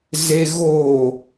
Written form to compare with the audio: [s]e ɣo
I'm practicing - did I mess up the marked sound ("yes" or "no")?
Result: yes